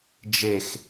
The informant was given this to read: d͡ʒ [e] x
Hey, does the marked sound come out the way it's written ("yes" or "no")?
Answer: yes